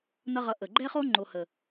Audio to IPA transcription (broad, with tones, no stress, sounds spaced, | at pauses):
n ʌ˦ ʁ ʌ˧ ʔ ə˨ ɡ͡ǃ ɛ˦ χ o˦ ŋ͡ǃ o˧ h ə˨